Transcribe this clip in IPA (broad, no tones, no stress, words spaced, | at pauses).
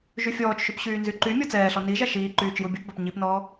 ʒyfʲɔːt͡ʃʃyp ɕyːnzyǃymʲɔ t͡sɛːɬɔ niʒa ʃiː ǃyːt͡ʃjubʲɔpbap ɲipnɔː